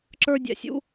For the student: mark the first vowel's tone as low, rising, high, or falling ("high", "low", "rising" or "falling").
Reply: high